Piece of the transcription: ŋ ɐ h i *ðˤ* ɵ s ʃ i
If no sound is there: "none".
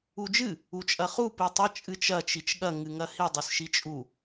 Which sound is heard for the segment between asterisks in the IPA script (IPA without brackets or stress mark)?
dˤ